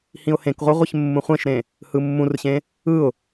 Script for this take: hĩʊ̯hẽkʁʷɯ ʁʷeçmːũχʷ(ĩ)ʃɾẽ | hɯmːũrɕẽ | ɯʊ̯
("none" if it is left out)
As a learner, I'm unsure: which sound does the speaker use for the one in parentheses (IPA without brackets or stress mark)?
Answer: ẽ